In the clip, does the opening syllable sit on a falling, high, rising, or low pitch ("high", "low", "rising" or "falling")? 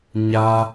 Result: high